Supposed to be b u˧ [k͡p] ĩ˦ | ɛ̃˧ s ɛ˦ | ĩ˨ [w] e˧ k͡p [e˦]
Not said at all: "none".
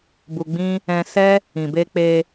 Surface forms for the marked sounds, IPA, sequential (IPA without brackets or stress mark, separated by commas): ɡ͡b, b, e˧